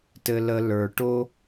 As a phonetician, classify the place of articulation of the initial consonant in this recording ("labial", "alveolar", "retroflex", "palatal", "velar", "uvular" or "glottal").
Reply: alveolar